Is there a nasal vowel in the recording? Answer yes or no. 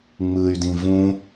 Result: yes